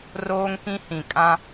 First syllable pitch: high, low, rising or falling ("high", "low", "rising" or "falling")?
high